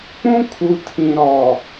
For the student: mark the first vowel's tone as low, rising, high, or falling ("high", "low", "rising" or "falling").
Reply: high